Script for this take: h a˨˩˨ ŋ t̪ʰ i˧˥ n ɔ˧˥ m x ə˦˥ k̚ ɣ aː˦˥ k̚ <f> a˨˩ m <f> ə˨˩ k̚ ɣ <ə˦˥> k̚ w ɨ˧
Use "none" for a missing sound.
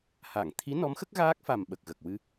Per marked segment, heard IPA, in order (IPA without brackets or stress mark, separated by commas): f, ɓ, ə˨˩